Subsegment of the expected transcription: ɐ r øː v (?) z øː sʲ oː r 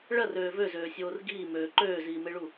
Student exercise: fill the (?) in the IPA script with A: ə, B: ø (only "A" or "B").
B